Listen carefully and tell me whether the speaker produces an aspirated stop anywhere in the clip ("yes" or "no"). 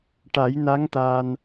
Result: no